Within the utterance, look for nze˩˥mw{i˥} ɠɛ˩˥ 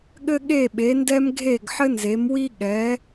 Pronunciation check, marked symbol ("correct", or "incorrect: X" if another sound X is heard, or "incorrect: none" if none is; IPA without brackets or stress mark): correct